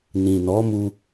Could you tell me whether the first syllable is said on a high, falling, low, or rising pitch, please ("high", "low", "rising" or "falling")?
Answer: low